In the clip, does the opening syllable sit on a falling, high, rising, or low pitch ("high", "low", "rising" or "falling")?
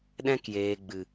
high